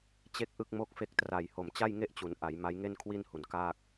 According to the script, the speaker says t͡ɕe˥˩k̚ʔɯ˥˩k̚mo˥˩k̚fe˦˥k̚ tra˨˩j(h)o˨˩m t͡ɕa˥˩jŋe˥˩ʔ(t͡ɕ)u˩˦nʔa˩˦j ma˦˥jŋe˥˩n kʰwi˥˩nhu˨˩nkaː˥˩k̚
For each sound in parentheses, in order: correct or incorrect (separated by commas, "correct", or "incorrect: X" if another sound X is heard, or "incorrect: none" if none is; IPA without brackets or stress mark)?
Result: correct, correct